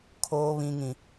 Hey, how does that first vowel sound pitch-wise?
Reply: high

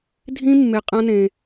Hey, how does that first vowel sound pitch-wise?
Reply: high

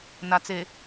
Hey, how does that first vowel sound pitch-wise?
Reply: low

